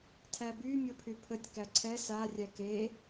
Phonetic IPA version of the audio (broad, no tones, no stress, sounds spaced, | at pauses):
tʰ æ b y mʲ o pʰ y pʰ ə tʲ k æ ǀʰ ɛ s a rʲ æ k e